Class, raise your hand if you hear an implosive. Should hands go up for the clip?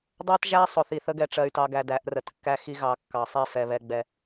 no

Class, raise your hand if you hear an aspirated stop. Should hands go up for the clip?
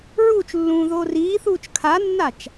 yes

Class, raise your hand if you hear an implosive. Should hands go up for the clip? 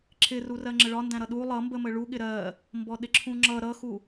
yes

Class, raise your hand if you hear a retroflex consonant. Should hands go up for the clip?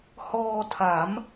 no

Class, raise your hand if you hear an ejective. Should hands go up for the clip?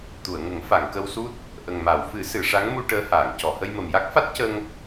no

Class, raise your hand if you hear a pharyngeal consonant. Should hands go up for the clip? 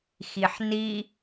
yes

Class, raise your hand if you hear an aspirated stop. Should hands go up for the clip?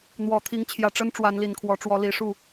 yes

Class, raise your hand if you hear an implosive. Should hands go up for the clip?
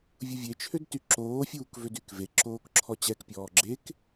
no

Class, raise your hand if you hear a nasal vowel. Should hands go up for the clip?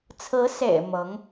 no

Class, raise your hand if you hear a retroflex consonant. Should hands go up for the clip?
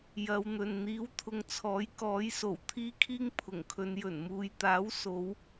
no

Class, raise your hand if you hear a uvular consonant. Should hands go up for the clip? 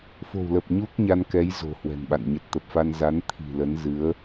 no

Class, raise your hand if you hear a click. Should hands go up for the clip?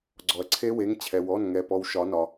yes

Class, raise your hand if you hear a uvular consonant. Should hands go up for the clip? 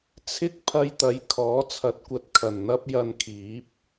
no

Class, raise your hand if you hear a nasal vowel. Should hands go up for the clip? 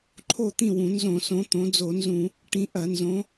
yes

